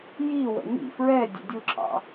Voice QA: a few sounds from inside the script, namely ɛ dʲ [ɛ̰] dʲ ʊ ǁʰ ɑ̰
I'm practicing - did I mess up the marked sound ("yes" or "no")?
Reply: yes